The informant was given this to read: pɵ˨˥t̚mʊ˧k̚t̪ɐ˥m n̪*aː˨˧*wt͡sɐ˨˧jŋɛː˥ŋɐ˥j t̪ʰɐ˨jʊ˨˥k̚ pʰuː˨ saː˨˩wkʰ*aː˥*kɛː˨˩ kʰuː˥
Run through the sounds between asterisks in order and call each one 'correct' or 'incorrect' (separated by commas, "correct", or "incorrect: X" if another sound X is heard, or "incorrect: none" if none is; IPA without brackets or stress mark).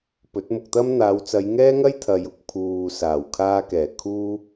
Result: correct, incorrect: aː˧